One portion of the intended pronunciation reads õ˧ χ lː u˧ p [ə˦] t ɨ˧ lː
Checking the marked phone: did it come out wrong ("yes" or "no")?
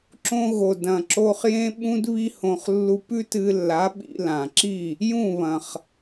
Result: yes